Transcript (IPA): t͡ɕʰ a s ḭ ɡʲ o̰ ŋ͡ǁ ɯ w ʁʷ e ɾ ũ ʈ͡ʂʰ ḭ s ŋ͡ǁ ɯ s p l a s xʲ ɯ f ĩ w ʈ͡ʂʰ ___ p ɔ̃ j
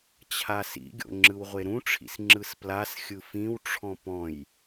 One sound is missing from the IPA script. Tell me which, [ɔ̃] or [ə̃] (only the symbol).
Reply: ɔ̃